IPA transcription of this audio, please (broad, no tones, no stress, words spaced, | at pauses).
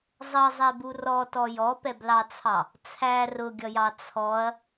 zˤʌzˤɛbu rɔtɔ jɔpɛblɑt͡sʰɑ | t͡sʰæ rʊɡʲʌjɑ t͡sʰɔɐ̯